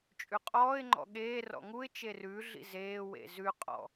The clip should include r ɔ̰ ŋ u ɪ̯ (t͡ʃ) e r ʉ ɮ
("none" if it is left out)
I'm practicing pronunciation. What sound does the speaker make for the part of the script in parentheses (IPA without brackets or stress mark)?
t͡ʃ